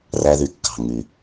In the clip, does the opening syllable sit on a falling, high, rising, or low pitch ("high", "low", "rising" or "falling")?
low